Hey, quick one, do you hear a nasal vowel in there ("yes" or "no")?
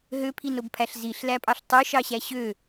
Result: no